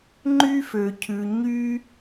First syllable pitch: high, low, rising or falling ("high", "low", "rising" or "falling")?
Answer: high